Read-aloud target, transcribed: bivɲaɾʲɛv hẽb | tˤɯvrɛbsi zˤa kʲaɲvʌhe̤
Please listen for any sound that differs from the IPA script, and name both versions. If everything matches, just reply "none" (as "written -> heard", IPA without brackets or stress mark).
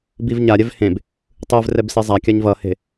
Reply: none